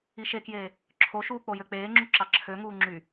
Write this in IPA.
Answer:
i ʃ e k j eː | ǁʰ o ʃ uː k͡p o j ø k͡p eː ŋ͡ǁ u ǁ ɑ ǁʰ ø ŋ uː ŋ͡ǁ y

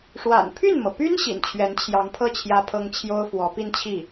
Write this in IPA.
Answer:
ʂ w a̰˨˩ n pʰ y˥˩ n m ɤ˩ p y˥ n ɕ ḭ˨˩ n t͡ɕʰ ɥ ɛ˧˥ n t͡ɕʰ j ɑ˧˥ ŋ pʰ ɤ˥˩ t͡ɕʰ j ä˥ pʰ ɤ˥ ŋ t͡ɕʰ j o˥ ʊ̯ f w ɔ˧˥ p i˥˧ n t͡ɕʰ i˥˩

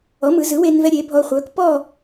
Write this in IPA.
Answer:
ɔ˩˥ m ɯ˩˧ z ɯ˩˥ w e˧ n v ɛ˧ ɾʲ e˩˥ bʱ ɔ˧ χʷ œ˩˥ k p ɔ˥˨

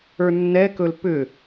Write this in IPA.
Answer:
ə˞ nː ɛ k ɵ l p ʏ

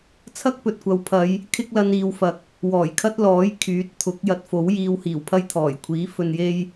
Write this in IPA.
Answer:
t͡sʰ ɐ˥ k̚ p ɵ˨ t̚ kʷ ɐ˨˧ w pʰ ɐ˨˧ j | kʰ ɪ˥ k̚ l ɐ˧ n iː˨ w f ɐ˨ k̚ | w ɔː˨˩ j kʰ ɐ˥ t̚ l ɔː˨˥ j kʰ yː˨˥ t̚ t̪ʰ ʊ˨˥ k̚ j ɐ˧ t̚ f o˨˥ w j iː˧ w h iː˨˩ w pʰ ɐ˥ j t̪ʰ ɔː˨˩ j kʷʰ iː˨˥ f ɵ˧ n j e˥ j

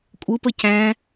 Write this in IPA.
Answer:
kʷʼ ɯ p ə c æ̃

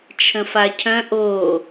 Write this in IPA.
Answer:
t͡ʃʰ ə̃ f a cʰ œ̃ ʔ o

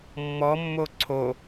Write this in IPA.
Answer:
mː ɔ mː o ǀʰ o

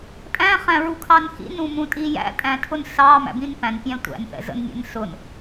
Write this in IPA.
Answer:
tʼ æ̃ χ æ̃ ɹ u kʰ ɑ n x ḭ n ũ m ũ tʼ i j æ̰ tʼ æ̃ tʰ ʊ n s ɑ m æ̰ b ĩ n p æ̃ n pʲ æ̃ tʷ æ̰ n θ ɛ̰ z ə̰ n mʲ ɛ̰ n s ʊ n

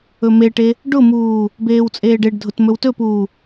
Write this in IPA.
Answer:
ɵ m e ʈ e | ɖ ʊ m uː | b eː w t͡sʼ eː ɖ e ɖ dʱ ʊ t m ɵ w t ɵ p uː

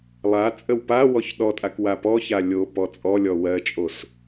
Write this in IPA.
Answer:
lˠ a t͡sʼ ə w p a w ɔ ç ɗ ɔ tʼ a k w a p ɔ ç a lʲ o p ɔ t͡sʼ ɔ lʲ ɔ w ɜ t͡ʃʼ o s

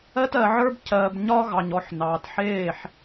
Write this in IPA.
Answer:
ɜ˦ t ɜ˨ ʕ ə˞˦ b cʰ ɜː˨ b ɲ ɒː˦ ɣ ɑ˨ ɲ ɔ˦˨ ħ n ɑː˨ t ħ eː˦˨ ħ

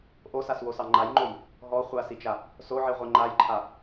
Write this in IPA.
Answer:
ʔ o s a s w o s ɑ ŋ͡ǃ a j ŋ͡ǃ o j | ɦ ɔ χʷ a s i t͡ʃ a | s o ʕ i ʁʷ i ŋ͡ǃ a j ǃʰ a

